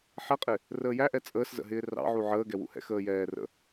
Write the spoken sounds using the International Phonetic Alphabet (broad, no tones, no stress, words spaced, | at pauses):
ħɛqʼɪ | rəːjæʔɛ t͡sʼəːszə̰ɦɪː rɑ̰ʕu ʕəːɡɛwṵhɛ̰ xəːjɛːrə̰